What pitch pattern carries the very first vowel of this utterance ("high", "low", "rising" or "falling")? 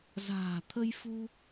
low